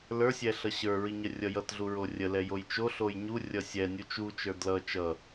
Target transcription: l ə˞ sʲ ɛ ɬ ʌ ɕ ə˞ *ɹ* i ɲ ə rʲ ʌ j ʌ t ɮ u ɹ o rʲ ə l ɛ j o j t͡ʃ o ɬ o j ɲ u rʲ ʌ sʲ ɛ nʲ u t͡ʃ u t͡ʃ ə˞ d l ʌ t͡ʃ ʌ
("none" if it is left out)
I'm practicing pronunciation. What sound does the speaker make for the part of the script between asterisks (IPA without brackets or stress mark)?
ɹ